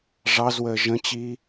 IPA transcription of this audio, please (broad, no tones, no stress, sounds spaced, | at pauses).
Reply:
ʐ ɑ z w əː ʒ ə̃ t͡ɕ i